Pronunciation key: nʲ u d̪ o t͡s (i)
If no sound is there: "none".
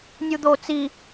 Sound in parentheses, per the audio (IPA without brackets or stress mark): i